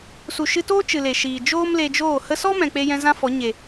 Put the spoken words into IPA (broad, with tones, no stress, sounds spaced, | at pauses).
s u˨ ʃ ɨ˧ t oː˦ t͡ʃ ɨ˨ l e˨ ʃ iː˨ d͡ʒ oː˦ m l e˧ d͡ʒ oː˦˨ h ə˧ s ɔ˦ m ɛ̃˨ k͡p e˧ j ɛ̃˧ z ã˦ f ɔ˨˦ ɲ e˨